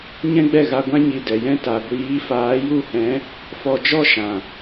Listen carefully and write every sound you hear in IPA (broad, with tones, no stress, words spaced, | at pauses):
ɲɛ̃˦ɡ͡bɛ˦˨ɣa˧ɡʷã˦ ɲi˧dɛ˨jɛ̃˦ ta˨ɡʷiː˨˦ faː˨˦ju˦˨hɛ̃˨˦ | fɔ˧d͡ʒɔ˦ʃã˨